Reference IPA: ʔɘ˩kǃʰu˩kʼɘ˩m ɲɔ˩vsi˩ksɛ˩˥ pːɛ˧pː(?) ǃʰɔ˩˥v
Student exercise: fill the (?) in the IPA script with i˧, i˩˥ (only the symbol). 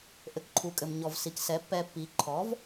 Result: i˩˥